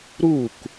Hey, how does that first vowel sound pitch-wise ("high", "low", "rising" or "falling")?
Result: falling